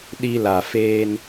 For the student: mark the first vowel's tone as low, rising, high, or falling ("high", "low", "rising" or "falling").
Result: high